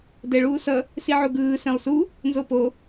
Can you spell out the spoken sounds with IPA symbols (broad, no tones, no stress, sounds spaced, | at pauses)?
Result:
d ɛ ɭ uː s ʌ | s i ʕ u ɡ ɯː s ẽ lˠ s u | n z o p o